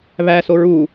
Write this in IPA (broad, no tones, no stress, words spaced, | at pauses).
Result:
βæ soɹuː